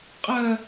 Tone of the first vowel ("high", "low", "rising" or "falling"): high